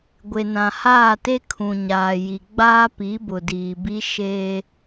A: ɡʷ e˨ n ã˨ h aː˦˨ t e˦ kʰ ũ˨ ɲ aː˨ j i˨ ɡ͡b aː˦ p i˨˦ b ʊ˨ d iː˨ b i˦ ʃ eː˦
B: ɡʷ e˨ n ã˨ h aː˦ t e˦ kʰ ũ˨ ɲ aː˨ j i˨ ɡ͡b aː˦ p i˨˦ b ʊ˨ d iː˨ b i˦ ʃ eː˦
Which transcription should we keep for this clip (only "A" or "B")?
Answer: A